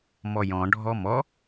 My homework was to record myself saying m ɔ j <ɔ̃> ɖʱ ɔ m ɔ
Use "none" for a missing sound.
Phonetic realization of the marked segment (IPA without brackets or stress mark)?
ɔ̃